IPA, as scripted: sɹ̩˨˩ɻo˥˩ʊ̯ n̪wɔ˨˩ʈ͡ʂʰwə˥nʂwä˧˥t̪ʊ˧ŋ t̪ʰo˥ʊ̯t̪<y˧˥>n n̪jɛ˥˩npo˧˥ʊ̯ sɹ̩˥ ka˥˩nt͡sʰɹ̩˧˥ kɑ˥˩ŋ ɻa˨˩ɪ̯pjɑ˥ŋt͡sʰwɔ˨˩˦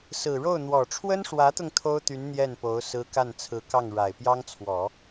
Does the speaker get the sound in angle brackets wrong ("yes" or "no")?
no